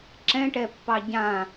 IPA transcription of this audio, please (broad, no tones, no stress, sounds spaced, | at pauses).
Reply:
ǁ ɛ̃ ʈ ɛ pː ɑ ɟ ã